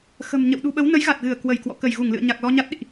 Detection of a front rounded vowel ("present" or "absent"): absent